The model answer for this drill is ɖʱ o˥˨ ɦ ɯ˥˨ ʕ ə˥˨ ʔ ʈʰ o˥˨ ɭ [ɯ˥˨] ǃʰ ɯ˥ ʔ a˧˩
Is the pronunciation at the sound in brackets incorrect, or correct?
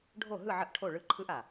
correct